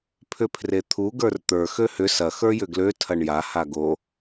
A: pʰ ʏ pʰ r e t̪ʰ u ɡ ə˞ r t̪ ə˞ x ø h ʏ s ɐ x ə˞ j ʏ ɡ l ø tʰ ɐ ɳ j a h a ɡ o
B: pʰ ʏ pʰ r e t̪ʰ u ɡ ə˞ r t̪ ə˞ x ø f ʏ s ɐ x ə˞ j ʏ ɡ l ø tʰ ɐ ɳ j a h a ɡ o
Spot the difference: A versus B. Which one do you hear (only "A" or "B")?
A